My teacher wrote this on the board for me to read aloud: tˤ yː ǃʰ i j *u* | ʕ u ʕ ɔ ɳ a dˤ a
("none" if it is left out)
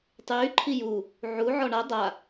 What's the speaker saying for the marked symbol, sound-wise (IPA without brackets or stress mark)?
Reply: u